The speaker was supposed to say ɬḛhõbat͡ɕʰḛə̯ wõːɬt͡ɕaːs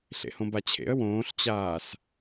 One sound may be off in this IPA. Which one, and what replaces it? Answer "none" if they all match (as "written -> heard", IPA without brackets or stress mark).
none